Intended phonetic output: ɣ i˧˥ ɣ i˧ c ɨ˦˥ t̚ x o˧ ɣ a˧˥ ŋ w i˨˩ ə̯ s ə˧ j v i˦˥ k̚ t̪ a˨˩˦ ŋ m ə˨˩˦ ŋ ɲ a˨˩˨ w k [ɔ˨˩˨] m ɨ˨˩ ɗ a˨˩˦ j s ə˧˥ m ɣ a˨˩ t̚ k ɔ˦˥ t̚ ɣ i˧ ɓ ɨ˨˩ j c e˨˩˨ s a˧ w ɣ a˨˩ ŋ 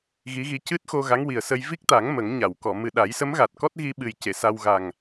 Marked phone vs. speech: correct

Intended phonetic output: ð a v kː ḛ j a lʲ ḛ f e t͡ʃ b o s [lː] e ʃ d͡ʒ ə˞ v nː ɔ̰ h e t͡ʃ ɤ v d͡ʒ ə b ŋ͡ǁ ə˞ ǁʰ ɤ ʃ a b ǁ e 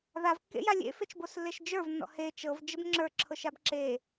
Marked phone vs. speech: correct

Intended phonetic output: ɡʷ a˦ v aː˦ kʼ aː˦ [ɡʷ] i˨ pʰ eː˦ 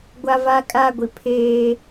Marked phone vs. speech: correct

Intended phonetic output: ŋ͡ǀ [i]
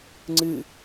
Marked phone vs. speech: incorrect: ɨ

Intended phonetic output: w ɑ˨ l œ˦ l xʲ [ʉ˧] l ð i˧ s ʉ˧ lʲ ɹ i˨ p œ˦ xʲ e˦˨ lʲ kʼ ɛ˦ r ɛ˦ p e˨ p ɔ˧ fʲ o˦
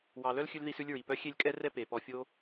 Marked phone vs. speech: correct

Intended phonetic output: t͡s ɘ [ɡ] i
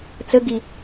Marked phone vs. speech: correct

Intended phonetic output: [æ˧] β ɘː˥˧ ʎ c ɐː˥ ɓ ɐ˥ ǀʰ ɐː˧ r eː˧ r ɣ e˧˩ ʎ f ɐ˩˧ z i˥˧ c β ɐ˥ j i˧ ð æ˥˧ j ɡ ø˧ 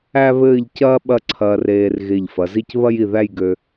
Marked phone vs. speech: incorrect: æ˥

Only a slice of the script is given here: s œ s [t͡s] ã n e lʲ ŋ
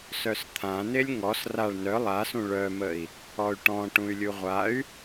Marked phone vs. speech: incorrect: t̪ʰ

